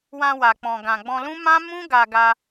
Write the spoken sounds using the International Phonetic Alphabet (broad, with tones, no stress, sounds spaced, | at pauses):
w ã˧ w a˨ k͡p ɔ̃˨ ɡ ã˨ ɡ͡b ɔ̃˧ l ũ˦ m ã˦ m ũ˦ ɡ a˧ ɡ a˧